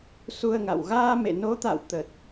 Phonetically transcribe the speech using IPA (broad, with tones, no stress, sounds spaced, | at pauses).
s u˧ ə̯ ŋ a̰˧˨ w ɣ aː˧ m ḛ˧˨ n o˨˦ t̪ a̰˧˨ w t̪ ə˨˩ t̚